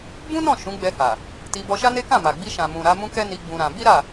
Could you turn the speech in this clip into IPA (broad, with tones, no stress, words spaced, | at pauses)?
bũ˦nɔ̃˦˨ ʃũ˨˦ɡ͡bɛ˧ha˨ | ti˧ bɔ˧ʃa˦ne˦ kã˦˨ma˨ɡ͡bi˧ ʃã˨mũ˨ ɾa˨˦mũ˦kɛ˦ni˧ ɡ͡bũ˧ɾã˧ bi˦ɾa˦˨